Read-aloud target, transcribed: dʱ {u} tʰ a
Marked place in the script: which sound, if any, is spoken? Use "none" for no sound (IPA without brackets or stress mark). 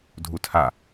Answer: u